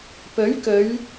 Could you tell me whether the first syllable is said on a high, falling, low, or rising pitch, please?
rising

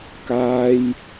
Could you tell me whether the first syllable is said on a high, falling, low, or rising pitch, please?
high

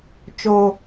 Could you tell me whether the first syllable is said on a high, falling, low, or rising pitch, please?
low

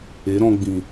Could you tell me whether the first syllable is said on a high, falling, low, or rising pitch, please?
rising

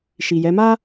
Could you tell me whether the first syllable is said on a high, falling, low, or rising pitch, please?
low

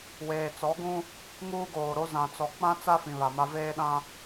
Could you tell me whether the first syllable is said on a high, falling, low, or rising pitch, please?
low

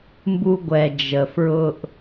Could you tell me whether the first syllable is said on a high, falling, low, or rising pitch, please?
low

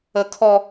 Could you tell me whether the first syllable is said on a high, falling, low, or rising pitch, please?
high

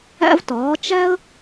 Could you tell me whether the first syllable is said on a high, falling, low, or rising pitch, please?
high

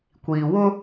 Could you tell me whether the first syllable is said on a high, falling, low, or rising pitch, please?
low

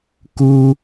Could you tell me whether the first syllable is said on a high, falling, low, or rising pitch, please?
high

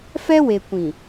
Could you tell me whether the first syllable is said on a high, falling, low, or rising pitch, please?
high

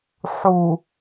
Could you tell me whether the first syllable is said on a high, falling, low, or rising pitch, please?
low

